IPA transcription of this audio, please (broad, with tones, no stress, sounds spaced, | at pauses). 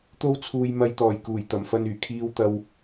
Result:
t̪ o˧ w t͡sʰ uː˨ j m ɐ˧ j t̪ ɔː˨˩ j k uː˨˩ j t̪ ɐ˨˩ m f ɐ˧ n yː˨˩ kʰ iː˧ w t̪ ɐ˧ w